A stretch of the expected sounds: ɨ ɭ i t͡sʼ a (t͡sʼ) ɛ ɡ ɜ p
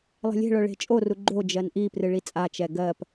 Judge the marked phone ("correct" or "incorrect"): incorrect